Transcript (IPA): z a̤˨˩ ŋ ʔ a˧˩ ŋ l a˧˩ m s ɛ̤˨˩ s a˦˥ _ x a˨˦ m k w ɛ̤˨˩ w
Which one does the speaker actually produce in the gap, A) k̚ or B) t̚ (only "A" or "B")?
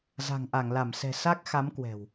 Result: A